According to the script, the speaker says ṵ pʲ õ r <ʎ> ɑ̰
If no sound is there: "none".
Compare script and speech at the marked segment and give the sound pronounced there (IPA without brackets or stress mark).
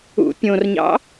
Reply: ɲ